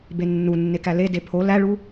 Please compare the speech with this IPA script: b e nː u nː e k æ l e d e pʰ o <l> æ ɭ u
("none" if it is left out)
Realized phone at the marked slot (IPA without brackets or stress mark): l